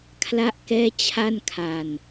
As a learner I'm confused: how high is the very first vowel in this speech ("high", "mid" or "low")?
low